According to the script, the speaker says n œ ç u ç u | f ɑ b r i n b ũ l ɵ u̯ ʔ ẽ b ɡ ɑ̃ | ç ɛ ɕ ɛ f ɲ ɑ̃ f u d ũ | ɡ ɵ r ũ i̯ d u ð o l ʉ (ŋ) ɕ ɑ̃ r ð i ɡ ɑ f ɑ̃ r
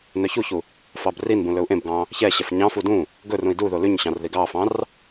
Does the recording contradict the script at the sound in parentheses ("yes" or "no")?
yes